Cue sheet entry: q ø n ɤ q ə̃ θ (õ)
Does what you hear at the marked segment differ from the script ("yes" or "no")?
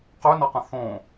no